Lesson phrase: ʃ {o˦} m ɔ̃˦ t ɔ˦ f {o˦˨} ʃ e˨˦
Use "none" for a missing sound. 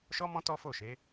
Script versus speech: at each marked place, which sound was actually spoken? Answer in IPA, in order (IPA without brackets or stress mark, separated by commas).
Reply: ɔ˦, o˦˨